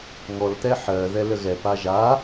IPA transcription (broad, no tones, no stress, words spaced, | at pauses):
ŋɔlt̪ɛ ħɜ ðɛləɣɛ paʒa